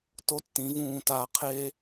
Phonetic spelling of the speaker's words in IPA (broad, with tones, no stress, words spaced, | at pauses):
to˦tːĩ˨˦ vũː˧taː˧ qʰe˦